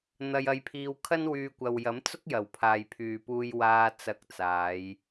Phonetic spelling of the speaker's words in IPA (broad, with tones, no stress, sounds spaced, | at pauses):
n̪ ɐ˧ j ɐ˧ j pʰ iː˧ w kʰ ɐ˥ n w yː˧ kʷ ɐ˨ w j ɐ˨˥ m t͡s ʊ˥ k̚ j ɐ˨˩ w pʰ aː˨ j pʰ yː˨ p uː˧ j w aː˧ t͡s ɐ˧ k̚ t͡s aː˨˧ j